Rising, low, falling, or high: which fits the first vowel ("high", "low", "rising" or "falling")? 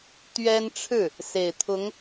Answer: high